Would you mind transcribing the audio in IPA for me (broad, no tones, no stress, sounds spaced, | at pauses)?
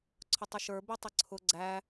ǀʰ ʊ tˤ ɛ ʃ ə˞ b i tˤ ə ǀʰ ʊ ɡ͡ǀ æ